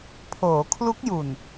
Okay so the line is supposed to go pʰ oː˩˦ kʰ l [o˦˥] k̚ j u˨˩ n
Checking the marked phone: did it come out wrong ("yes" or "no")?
yes